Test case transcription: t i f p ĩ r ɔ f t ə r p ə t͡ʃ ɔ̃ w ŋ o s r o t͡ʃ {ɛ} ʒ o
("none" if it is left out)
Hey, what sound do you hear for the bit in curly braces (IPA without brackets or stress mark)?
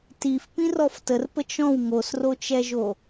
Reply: ɛ